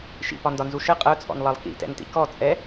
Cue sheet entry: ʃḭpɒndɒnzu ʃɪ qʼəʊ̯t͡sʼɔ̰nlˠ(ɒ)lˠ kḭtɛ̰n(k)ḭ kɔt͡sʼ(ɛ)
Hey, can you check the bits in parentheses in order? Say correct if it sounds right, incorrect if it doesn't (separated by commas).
incorrect, incorrect, correct